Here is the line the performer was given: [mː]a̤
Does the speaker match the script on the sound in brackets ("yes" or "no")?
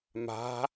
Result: no